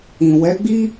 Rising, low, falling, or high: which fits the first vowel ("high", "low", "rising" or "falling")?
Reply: low